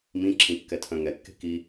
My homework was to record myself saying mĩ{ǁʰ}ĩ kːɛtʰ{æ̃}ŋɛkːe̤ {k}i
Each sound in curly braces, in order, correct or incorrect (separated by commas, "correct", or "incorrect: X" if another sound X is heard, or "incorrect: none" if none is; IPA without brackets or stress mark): correct, incorrect: œ̃, correct